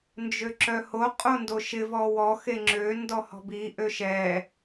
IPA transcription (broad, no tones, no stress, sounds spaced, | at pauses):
n d͡ʒ ø ǁ œ h o qʼ o n d o ʃ ɪ v ɔ w ɔ x e ŋ͡ǁ ø n d ɔ h ɔ̤ b i ʔ ø ʃ ɛ